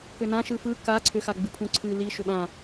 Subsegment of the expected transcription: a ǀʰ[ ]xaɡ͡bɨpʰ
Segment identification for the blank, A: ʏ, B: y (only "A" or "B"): A